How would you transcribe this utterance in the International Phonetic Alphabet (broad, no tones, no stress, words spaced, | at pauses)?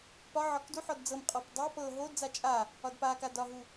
pɒʕɒk duħɔd d͡zɤmqʼɔp dˤa pɤ ɦodd͡za t͡ʃʼa | ɒdpaka dɒɦu